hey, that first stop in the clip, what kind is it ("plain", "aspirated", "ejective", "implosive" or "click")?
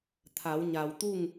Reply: aspirated